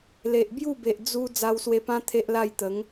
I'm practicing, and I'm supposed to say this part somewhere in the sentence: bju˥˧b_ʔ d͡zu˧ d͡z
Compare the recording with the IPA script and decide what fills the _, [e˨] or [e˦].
e˨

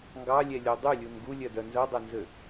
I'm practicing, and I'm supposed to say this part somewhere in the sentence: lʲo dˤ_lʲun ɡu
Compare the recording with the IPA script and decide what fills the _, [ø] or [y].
y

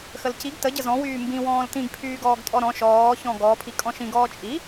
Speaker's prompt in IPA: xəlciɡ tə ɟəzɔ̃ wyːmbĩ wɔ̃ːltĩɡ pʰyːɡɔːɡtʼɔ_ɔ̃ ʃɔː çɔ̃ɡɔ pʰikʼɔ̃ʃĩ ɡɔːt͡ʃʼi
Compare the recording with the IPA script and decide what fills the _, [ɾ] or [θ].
ɾ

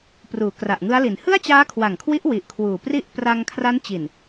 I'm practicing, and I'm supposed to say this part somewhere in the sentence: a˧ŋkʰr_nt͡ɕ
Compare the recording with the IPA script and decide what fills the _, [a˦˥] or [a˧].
a˦˥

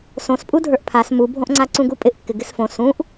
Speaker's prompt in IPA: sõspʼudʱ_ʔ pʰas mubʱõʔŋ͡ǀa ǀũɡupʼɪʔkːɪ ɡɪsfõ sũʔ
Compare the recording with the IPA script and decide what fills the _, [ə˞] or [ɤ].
ə˞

